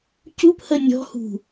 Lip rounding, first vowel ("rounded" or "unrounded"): rounded